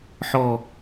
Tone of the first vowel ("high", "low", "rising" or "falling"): falling